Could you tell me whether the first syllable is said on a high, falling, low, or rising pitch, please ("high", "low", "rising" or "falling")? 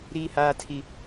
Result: high